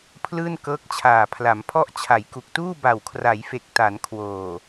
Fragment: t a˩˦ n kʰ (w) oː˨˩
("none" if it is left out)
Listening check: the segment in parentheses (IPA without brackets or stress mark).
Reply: w